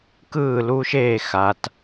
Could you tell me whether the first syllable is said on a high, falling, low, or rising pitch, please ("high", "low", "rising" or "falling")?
falling